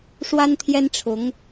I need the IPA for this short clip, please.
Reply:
ʂ w a˥ n t̪ʰ j ɛ˥ n ʈ͡ʂʰ ʊ˧˥ ŋ

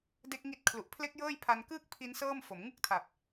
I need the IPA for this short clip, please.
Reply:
d e˦˥ k̚ ŋ i˦˥ t̚ kʰ l u˨˩ ʔ pʰ l e˦˥ k̚ j ɤː˥˩ j pʰ a˧ n k ɯː˥˩ k̚ pʰ i˦˥ n s ɤː˥˩ m f o˩˦ m ŋ ɯ˥˩ k̚ tʰ a˨˩ p̚

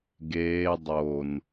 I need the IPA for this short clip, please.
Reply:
ɡ eː dˤ o n

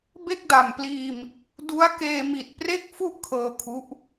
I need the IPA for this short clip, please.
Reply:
b e˥˩ k̚ d a˨˩ m p l iː˧ m | d u˦˥ a̯ k eː˧ m i˨˩ t̚ p r e˥˩ k̚ f u˥˩ ʔ kʰ ɤː˧ kʰ u˦˥ ʔ

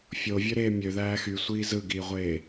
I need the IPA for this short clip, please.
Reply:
fʲ o vʲ ø ɾ eː mʲ ø ð æː x y sʷ iː z ɯ ɡ iː ʁʷ eː

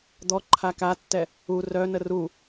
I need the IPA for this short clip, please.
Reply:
d̪ ɔ ǃʰ a k a tː ɛ | u r œ n ə r u

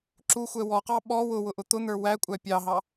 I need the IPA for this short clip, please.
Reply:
ǁ u xʷ ɛ w ɔ q ɑ ɓ ɔ w ʊ w ʊ ʔ ʊ t̪ ʊ n̪ ə˞ w æ kʷʼ æ pʲ ɑ ɦ ɑ

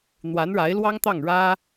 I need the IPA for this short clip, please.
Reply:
n̪ w a˧˥ n ɻ a˧˥ ɪ̯ l w ɑ˥ ŋ t̪ ɑ˥˩ ŋ ɻ ä˥

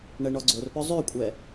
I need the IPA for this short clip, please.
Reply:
ɳ ɛ ɳ ɔ ɡ͡ǀ o r p œ zˤ ø kʷʼ ɛ

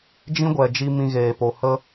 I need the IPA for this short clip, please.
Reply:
d͡ʒ ĩ˦ ɡʷ ɛ˨ d͡ʒ i˧ m ĩ˧ ɣ eː˨ p o˨ h ə˦

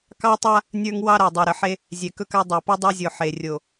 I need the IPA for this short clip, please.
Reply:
k ɑ˦ tˤ a˦ | nʲ ə˞˦ ŋ w ɑ˦ ɾ a˨ dˤ ø˨ ɾ ə˨ ħ e˦ | zʲ ɛ˨ k ɵ˦ k a˦ dˤ e˨ p o˦ dˤ o˦ zʲ o˨ ħ e˨ rʲ o˨

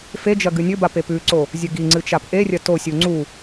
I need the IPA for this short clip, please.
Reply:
f e d͡ʒ ɐ ɡ ɨ nʲ ɵ b a p e p ʉ ǀ o | zʲ ɵ ɡ i ŋ͡ǀ ɨ t͡ʃ a p ʔ e rʲ ɐ t o sʲ u ŋ͡ǀ u

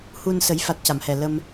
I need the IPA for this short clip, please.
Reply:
h u˧ n s ə˨˩˦ j f a˨˩ t̚ c a˨˩˨ m h ɛ˨˩ l ə˧ m

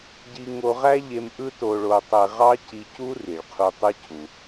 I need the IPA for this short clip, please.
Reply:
ɟ i˧ ŋ o˧ ʁ æ˥ ʎ e˧ m ʔ ɯ˥ t o˧ ɭ o˧ tˤ e˧ ʁ ɑ˥ c i˧ c u˥ r i˩ ɭ qʰ u˧ tˤ ɯ˥ cʰ u˩

